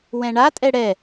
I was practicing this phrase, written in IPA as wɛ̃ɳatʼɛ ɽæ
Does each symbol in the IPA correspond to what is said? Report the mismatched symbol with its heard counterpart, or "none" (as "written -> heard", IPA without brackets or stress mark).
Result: æ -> ɛ